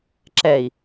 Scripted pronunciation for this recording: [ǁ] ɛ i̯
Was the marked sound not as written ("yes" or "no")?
no